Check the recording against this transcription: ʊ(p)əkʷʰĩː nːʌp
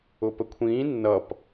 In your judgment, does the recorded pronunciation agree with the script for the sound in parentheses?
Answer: yes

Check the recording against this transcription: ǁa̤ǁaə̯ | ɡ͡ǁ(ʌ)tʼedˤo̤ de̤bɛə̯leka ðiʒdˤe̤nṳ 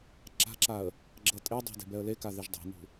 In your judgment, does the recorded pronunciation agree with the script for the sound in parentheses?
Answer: yes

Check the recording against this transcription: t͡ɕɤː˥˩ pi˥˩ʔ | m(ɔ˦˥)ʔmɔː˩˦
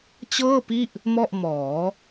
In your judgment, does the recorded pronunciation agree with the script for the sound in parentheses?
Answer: no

